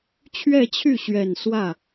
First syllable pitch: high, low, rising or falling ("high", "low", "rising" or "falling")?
falling